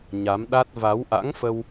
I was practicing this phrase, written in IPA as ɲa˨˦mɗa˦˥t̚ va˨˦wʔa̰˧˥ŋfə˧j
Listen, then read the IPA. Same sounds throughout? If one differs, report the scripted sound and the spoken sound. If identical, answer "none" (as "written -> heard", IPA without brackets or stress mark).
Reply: j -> w